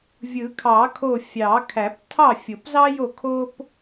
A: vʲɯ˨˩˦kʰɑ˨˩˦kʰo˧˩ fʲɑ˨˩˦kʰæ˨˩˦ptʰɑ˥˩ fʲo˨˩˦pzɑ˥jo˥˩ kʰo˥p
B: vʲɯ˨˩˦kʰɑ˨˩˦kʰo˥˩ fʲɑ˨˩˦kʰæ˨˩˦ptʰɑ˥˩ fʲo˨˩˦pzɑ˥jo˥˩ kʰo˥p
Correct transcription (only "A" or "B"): A